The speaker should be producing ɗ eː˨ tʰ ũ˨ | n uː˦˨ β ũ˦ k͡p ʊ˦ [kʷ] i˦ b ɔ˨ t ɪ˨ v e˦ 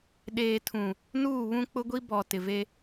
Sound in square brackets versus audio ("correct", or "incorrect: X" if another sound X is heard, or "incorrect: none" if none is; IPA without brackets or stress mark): incorrect: ɡʷ